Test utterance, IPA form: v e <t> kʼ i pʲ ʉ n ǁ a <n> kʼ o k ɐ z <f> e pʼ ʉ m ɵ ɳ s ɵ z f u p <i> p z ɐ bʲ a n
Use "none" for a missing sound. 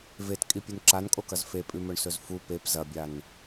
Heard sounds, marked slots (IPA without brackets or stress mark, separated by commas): t, n, f, e